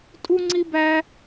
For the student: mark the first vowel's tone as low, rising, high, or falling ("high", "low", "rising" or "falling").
high